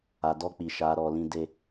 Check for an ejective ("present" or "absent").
absent